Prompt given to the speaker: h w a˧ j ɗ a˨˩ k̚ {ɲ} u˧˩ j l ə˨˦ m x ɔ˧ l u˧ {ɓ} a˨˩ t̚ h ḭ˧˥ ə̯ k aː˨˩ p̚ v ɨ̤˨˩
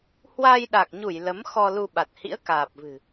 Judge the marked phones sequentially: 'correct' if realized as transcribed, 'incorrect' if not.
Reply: correct, correct

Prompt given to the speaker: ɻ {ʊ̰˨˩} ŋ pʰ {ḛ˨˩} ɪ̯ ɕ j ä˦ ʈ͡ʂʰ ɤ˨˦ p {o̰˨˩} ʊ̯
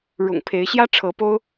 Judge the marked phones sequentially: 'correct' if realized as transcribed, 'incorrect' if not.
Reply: correct, incorrect, incorrect

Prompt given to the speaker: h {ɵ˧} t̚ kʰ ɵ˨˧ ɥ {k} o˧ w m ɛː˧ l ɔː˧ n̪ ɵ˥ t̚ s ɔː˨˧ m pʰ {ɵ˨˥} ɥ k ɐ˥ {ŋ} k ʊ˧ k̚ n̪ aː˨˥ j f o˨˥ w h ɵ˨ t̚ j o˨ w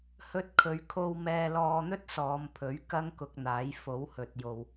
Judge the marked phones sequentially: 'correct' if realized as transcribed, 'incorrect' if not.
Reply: correct, incorrect, correct, correct

